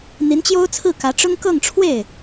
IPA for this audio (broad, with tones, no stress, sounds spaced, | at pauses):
n̪ i˧˥ n t͡ɕ j o˥ ʊ̯ t͡sʰ ɹ̩˥˩ k ä˧˥ ʈ͡ʂ ʊ˥ ŋ k ɤ˥˧ ŋ ʈ͡ʂʰ w e˥˩ ɪ̯